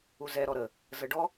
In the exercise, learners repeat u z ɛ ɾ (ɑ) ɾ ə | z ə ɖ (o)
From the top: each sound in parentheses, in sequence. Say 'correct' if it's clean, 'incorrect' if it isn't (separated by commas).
incorrect, incorrect